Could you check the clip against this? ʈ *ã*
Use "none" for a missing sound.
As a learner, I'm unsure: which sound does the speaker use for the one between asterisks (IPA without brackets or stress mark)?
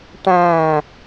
æ̃